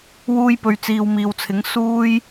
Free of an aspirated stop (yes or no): no